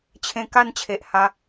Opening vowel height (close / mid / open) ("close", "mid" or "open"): mid